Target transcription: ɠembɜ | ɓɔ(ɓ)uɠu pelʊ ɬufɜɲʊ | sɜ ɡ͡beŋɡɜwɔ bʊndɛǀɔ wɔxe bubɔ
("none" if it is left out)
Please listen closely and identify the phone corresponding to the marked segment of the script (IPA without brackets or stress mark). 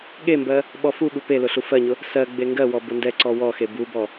f